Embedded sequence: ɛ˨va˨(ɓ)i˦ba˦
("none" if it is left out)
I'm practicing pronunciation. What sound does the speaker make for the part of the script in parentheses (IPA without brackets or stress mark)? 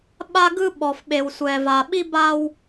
ɓ